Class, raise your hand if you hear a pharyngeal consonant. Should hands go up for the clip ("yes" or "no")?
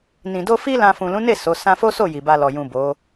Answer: no